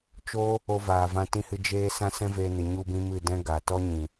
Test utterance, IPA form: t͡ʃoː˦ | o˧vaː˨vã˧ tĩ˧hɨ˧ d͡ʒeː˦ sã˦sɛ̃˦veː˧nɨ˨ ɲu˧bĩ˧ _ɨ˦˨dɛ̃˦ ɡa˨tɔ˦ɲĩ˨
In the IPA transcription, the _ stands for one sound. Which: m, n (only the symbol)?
m